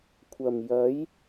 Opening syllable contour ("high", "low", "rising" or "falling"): low